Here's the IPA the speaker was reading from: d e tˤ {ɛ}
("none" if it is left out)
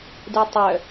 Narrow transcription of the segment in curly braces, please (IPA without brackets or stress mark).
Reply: œ